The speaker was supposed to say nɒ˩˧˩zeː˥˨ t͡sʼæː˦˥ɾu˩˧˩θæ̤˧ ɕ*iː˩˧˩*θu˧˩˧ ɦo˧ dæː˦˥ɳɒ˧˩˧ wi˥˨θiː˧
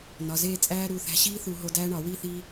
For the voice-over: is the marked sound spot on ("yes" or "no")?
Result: no